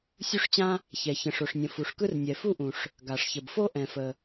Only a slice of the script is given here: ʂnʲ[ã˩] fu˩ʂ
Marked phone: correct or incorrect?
incorrect